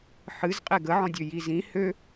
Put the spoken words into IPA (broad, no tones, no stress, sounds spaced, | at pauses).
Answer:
ħ ɨ z qʼ e ɡ ə ʕ ɔ̃ dʲ ø j i z ĩ h ø